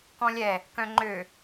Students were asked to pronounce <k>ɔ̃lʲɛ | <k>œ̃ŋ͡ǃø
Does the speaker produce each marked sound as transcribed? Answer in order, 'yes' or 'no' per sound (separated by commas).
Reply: yes, yes